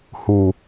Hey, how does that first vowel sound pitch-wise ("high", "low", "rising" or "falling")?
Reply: low